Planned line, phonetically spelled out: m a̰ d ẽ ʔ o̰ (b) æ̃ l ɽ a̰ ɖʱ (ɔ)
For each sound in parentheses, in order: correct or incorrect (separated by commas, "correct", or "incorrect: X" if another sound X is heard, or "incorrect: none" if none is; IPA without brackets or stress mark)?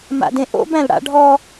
correct, correct